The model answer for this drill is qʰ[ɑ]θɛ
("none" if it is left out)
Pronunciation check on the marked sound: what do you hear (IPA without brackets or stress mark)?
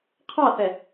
ɑ